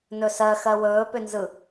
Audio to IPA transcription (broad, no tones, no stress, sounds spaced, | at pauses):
n ɵ s ɜ x ɜ w ɵː p ʏ n z ɯ